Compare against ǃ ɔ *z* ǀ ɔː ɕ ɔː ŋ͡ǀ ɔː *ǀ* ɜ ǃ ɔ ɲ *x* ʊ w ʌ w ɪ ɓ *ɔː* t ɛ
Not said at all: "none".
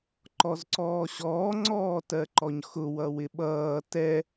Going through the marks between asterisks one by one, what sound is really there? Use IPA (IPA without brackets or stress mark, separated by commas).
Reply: z, t, x, ʌː